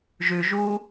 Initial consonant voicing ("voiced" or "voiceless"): voiced